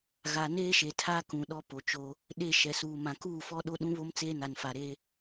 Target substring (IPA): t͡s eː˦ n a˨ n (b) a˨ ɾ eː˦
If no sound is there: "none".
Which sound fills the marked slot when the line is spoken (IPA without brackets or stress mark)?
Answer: f